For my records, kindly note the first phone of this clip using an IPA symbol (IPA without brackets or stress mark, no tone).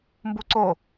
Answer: m